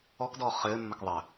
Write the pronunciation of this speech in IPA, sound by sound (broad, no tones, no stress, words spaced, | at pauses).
ɔkdɔː χɘːmːək ðˤəː